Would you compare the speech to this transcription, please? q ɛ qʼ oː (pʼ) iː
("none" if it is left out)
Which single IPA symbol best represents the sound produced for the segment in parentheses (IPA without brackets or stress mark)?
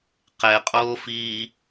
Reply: f